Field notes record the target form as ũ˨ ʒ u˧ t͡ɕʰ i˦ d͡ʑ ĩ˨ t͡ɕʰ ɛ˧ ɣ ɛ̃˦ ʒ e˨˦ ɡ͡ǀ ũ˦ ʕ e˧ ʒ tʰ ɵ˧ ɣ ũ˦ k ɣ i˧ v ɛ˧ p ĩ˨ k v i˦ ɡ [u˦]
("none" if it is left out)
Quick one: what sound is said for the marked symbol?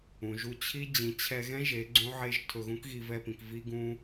ũ˦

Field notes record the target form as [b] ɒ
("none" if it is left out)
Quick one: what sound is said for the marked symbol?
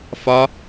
f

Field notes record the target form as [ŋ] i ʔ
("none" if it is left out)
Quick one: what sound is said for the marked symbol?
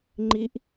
ŋ͡ǃ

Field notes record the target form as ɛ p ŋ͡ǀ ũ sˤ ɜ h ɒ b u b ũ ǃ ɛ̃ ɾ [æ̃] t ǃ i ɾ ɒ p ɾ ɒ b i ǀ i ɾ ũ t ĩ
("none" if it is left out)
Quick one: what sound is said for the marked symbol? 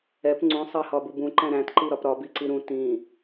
æ̃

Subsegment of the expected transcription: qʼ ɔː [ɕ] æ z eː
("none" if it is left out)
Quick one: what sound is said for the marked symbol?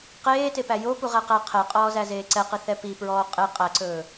z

